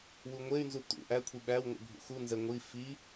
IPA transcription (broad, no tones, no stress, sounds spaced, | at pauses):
w u ŋʷ e y̯ n z u t̪ ṵ ʔ æ kʷʰ i ɓ æ w ŋʷ ə̰ bʱ ṵ x u n z ɛ ŋʷ i f i